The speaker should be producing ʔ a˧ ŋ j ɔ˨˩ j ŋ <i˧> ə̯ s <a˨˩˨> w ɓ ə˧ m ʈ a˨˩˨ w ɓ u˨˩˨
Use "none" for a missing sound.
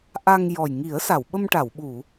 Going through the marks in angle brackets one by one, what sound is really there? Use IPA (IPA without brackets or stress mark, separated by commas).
i˨˩˦, a˨˩˨